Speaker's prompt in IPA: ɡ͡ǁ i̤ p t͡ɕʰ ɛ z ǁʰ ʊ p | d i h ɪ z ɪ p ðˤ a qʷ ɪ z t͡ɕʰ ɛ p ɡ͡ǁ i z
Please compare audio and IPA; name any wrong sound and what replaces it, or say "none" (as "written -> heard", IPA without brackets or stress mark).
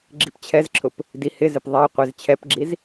none